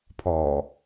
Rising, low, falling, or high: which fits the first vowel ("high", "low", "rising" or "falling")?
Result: low